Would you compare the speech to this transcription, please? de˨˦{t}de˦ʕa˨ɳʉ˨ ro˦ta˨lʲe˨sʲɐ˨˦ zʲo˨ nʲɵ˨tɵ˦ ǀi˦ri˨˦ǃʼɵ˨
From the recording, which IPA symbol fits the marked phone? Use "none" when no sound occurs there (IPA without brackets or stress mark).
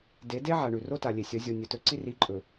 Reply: none